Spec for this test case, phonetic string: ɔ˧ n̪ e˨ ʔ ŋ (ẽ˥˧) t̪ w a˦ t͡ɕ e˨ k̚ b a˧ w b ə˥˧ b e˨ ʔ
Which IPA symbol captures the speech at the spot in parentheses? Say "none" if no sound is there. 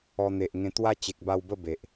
ẽ˧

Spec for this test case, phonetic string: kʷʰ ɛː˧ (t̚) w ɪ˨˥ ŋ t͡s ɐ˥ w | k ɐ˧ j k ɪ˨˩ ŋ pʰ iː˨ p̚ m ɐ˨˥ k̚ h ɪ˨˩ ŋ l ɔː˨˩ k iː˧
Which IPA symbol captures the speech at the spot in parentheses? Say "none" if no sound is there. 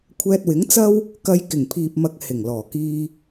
t̚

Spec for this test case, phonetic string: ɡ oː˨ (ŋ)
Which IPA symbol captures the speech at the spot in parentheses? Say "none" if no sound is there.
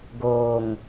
ŋ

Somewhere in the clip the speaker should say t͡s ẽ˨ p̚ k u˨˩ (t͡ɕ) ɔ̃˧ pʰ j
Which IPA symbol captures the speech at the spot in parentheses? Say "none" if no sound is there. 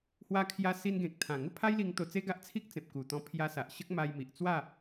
t̪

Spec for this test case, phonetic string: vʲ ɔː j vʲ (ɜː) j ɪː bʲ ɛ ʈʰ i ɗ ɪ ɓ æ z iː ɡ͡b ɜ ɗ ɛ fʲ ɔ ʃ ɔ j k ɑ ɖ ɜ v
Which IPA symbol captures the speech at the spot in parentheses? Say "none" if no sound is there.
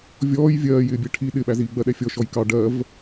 ɜː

